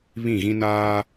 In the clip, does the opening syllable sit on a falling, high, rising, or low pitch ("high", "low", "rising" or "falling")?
falling